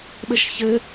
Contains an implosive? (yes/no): yes